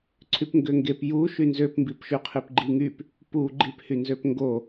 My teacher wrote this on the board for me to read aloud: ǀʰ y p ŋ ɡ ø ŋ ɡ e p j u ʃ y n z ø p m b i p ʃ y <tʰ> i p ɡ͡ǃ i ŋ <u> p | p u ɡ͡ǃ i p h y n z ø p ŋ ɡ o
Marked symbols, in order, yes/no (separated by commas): no, no